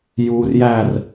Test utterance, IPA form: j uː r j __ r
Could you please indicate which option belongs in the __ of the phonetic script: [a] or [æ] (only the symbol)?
æ